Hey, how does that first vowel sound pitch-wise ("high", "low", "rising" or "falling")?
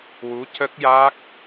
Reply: rising